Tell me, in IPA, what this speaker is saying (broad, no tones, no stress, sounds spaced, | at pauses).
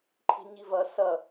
ǃʰ i̤ ɲ i v ɐ s ɐ